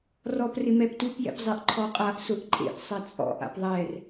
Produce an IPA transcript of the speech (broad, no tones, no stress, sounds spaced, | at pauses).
r ɔ p r ɪ m ɛ p t u p j ɛ̰ p zˤ e ʔ ǃʰ ɔ qʼ a ʔ s ʊ ʔ ǃʼ ḛ ʔ sˤ ɛ t͡sʼ ɔ̰ ʔ a̰ p ðˤ ɛ r